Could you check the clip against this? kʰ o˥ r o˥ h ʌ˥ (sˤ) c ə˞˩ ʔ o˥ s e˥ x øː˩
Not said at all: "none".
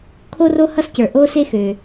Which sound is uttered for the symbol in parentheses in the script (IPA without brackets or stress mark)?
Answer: s